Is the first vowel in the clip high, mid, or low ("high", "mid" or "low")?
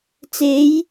mid